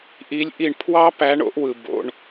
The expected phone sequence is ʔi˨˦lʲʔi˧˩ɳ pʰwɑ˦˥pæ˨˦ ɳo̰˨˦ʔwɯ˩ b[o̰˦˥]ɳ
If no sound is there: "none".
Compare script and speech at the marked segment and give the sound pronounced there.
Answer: o̰˩˧˩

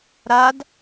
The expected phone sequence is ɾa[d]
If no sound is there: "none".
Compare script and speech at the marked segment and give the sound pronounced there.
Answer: d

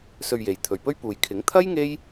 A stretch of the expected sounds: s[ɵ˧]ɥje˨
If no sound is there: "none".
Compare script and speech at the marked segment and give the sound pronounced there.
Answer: ɵ˧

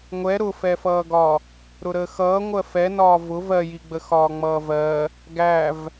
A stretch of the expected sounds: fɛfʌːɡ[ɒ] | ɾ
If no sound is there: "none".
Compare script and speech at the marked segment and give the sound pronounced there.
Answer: ɒ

